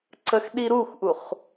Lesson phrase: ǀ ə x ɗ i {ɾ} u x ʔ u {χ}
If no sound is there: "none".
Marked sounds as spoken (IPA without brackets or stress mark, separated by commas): ɾ, χ